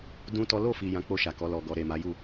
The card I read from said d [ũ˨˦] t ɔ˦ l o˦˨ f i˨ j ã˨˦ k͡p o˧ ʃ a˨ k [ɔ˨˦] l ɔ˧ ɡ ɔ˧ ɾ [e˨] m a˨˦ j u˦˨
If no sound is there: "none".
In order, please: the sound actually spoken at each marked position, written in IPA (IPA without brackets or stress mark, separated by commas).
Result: ũ˦, ɔ˨˦, e˨